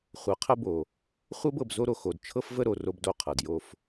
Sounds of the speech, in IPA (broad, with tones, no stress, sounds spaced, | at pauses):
χʷ ɤ˨˦ qʰ ə˦ b o˨ | χʷ ɤ˦ b ɤ˨ b z o˦ ɾ o˨ x o˨ d t͡ʃʰ ɤ˦ f v ə˦ ɾ o˨ r o˦ b d o˦˨ qʰ ɤ˨ d j o˦ f